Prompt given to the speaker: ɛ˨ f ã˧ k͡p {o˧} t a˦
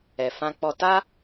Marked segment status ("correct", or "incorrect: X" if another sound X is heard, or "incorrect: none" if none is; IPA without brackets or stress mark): incorrect: ɔ˧